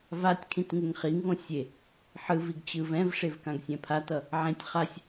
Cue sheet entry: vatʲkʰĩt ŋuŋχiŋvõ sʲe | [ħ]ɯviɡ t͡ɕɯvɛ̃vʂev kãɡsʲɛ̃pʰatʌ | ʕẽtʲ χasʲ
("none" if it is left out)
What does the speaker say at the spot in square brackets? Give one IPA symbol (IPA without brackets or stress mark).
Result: ħ